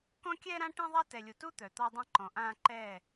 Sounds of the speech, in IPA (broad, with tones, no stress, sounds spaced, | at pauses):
k ɔ̃˦ kʲ ɛː˦ ɾ ã˦ ʈ ẽ˦ ðˤ a˦ t ɛ˨ lʲ u˨ t u˦ t̪ œ˨ t̪ ɔ˦ dˤ ẽ˦ ǃ ɔ̃˨ ʔ ãː˦ ǃ ɛː˦˨